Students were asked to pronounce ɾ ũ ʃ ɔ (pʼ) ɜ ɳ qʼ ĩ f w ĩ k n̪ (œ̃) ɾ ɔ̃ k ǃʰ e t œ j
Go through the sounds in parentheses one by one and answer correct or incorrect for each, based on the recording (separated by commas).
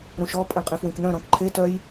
correct, correct